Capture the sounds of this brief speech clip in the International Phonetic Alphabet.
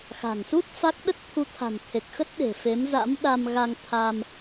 xa̤˨˩ŋsu˦˥t̚ fa˦˥k̚ ɗə˦˥t̚t̪ʰu˨˦t̪ʰa̤˨˩nt̪ʰe˨˩k̚ xə˦˥t̚ɗe̤˨˩ fe˨˦mza̰˧˥mɗa˧mɣa˧ŋ t̪ʰa˧m

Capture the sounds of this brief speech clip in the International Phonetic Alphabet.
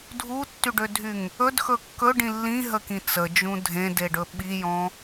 dʱutːyɖødʱyŋ | ɵdxɵ kːɵɖĩ lːĩɦəkĩ t͡səd͡ʒũ dʱẽdeɖɵ ɓijɔ̃

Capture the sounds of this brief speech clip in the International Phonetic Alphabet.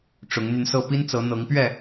ʈ͡ʂʊ˨˦ŋn̪y˧nsɤ˥˨ pi˦nt͡sɤ˨˦n̪ɤ˨˦ŋpɥɛ˥˨

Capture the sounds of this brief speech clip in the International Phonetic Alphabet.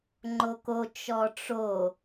ŋ͡ǃoko t͡ʃɔʈ͡ʂo

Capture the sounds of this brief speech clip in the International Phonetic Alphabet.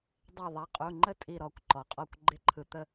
dˤɛ˧˩ðˤa˨˦qʼu˩˧˩ŋ͡ǃə˥˨ tʼi˧˩ ɾɔ˧˩kʷ ǃɔ˩qʼɔ˧˩kʷ ɡ͡ǃɪ˨˦ǃʰɯ˩t̪ə˧˩

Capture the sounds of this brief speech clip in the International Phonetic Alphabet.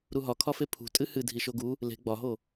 ɾuɦɒkʰɒfe pʰṳ tʼɨhɨ dʱiʃoɡu | le̤ ɡ͡bɒɦo

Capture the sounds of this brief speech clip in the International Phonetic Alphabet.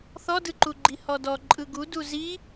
θɔdɯǃuɡ͡ǃi hɔdɔ ǃʼɯɡu duzi

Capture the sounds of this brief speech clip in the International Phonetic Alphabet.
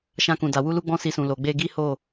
ʃã˧kũ˨da˨ wu˧lu˧ ɡ͡bɔ̃˦si˧sũ˨ lo˨ɡ͡be˧ɡi˦ho˦˨

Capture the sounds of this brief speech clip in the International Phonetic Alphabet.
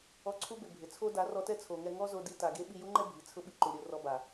ɔ˧ǀʰu˦bɪ˨ bʱɪ˨t͡sʰo˦ da˨˦rɔ˧tɛ˦t͡sʰo˨ ŋɛ˧ŋɔ˦zo˧di˧ ta˨ɡe˦ ɓi˧ju˦ŋ͡ǃɛ˦ bʱi˨ t͡sʰʊ˦ɓi˧ ǃu˨ ɾʲo˧rɔ˧ba˨

